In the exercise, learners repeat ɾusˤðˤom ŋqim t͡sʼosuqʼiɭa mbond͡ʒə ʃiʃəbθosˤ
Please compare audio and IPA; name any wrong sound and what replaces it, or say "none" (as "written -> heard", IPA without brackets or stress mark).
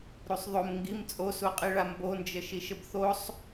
q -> ɡ